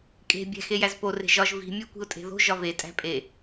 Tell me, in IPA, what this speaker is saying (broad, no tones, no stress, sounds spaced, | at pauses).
kʼ e̤ bʲ æ̤ x e j æ z p o r e̤ ʒ ɒ ʒ v i̤ mʲ æ kʷ i̤ ʊ̯ tʼ e̤ ð o̤ ʒ ɒ v e tʼ æ̤ pʼ e